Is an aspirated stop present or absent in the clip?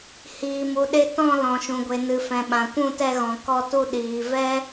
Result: absent